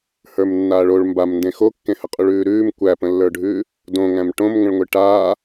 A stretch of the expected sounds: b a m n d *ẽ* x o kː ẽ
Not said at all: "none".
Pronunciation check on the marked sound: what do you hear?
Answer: ẽ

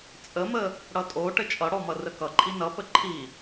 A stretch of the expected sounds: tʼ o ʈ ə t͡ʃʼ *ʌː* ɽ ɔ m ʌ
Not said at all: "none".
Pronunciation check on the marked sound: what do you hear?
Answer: ʌ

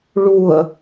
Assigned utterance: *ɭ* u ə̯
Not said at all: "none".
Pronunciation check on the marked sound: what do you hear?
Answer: ɭ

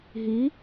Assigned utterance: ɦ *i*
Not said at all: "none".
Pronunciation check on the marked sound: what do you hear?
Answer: i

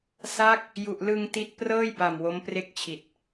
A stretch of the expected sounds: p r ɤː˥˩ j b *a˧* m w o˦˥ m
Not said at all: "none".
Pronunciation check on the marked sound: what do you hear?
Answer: a˨˩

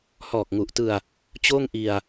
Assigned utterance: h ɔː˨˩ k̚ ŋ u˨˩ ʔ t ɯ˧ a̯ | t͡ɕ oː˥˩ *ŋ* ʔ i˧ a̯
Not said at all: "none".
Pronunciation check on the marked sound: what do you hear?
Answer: ŋ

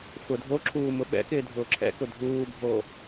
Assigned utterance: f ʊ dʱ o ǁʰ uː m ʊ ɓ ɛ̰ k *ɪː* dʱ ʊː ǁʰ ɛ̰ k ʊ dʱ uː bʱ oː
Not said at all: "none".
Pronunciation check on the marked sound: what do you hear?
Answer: ɪː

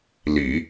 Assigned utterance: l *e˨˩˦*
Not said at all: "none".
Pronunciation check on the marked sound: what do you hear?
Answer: i˨˩˦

